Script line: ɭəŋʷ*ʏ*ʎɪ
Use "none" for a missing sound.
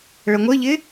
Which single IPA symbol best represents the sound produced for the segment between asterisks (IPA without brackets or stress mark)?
ə